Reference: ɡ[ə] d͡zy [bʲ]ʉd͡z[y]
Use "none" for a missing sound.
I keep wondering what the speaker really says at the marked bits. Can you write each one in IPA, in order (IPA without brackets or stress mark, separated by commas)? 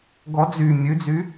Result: ɔ, mʲ, y